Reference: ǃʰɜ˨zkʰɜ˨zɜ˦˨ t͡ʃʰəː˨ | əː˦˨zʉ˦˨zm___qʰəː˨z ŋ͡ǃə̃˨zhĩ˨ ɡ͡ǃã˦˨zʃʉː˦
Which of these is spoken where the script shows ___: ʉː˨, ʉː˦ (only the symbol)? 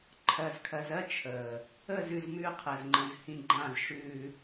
ʉː˦